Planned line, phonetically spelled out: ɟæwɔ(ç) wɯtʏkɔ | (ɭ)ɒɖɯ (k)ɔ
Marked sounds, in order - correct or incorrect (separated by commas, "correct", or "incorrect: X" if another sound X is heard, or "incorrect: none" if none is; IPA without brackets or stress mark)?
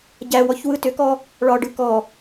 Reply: correct, correct, correct